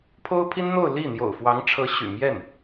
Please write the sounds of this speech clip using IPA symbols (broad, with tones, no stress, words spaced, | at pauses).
pʰo˥ʊ̯pʰi˥nn̪o˥˧ʊ̯ li˥˩ n̪jo̰˨˩ʊ̯fwɑ˧˥ŋʈ͡ʂʰɤ˧˥ ɕy̰˨˩mjɛ˥˩n